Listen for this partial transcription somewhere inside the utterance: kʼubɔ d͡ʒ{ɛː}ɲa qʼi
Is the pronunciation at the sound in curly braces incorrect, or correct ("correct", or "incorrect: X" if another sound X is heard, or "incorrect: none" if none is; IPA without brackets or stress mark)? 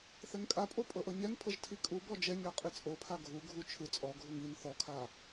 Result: incorrect: ɛ